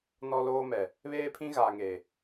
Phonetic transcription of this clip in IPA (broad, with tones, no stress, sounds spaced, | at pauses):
n ɔ˦ l oː˦ m ɛ˨ | β eː˦ pʰ ĩ˦ ɣ aː˨ ŋ eː˨